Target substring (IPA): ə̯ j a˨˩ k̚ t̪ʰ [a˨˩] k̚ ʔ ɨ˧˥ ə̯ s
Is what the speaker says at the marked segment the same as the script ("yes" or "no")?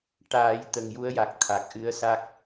yes